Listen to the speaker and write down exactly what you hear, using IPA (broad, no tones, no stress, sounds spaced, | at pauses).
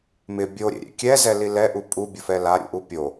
m ɪ bʲ o ɾʲ ḛ ɾʲ ḛ kʲ ɛ z ɛ l i l ɛ ʔ u pʼ u bʲ ʊ f ɛ l a ɾʲ ṵ ʔ u pʲ o